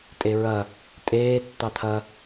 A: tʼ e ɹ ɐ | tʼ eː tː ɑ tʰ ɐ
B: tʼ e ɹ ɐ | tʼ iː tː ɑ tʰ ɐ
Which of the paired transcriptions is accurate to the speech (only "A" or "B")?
A